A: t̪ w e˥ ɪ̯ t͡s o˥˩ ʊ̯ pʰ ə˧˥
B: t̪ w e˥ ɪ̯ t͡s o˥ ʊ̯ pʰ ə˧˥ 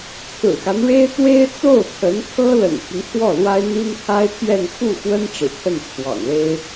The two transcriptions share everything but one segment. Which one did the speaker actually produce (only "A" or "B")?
A